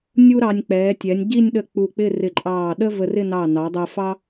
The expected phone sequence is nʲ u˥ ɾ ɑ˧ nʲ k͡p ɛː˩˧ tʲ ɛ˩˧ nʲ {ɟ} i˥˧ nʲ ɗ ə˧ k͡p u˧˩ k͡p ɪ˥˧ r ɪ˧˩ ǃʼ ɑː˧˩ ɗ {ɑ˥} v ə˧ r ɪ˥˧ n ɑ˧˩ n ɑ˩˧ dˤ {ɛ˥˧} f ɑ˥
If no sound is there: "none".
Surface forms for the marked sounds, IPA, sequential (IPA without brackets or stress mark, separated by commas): ɟ, ə˥, ɛ˧